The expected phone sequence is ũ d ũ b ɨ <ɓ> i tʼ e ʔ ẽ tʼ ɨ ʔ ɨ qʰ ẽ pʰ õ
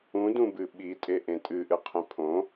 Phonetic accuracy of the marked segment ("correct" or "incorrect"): correct